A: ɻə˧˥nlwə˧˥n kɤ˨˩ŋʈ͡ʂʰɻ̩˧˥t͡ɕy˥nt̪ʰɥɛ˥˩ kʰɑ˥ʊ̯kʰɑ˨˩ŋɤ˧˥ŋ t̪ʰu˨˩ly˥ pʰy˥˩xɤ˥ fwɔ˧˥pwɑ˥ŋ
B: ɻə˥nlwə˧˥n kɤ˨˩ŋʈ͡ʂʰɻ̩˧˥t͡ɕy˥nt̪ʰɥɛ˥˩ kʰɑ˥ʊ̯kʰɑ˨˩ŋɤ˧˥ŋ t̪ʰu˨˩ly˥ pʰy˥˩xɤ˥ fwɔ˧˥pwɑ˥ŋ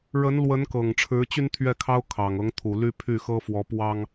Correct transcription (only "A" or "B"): A